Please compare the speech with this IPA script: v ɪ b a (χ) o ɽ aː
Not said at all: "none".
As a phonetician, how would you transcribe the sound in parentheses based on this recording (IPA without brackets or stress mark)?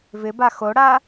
x